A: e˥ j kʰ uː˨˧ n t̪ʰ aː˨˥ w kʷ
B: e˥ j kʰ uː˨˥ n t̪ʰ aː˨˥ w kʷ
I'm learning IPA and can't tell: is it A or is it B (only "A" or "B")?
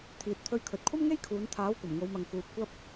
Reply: A